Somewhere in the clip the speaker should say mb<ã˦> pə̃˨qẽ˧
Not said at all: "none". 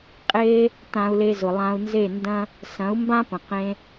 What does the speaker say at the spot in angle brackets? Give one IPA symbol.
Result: ã˦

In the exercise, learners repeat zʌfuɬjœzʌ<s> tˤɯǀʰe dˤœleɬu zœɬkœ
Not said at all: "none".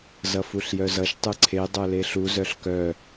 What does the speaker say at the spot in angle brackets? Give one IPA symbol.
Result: ʃ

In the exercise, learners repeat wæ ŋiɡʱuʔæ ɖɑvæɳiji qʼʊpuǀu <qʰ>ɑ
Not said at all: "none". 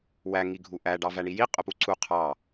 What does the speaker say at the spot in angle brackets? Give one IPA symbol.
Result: qʰ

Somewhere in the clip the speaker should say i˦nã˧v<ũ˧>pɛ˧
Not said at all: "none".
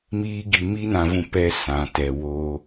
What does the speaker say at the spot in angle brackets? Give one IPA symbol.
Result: ũ˧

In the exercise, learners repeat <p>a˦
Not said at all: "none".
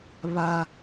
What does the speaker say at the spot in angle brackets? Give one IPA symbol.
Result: β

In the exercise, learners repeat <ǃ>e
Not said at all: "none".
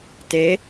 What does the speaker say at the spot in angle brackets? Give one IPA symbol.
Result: t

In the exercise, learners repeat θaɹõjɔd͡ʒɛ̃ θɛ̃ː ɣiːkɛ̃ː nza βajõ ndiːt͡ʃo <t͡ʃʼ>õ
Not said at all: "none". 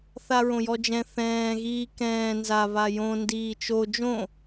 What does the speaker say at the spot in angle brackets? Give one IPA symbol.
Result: d͡ʒ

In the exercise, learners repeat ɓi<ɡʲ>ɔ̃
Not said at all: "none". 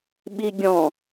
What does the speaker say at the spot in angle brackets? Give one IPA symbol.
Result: ɡʲ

